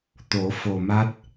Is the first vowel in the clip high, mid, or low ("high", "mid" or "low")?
mid